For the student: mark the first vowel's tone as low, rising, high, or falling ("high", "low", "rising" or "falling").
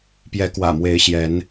rising